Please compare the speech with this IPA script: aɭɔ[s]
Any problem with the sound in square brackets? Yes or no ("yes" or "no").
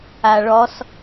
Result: no